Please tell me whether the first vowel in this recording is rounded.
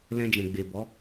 no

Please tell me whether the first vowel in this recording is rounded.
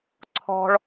yes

